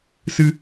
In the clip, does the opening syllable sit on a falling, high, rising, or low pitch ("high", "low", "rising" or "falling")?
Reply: high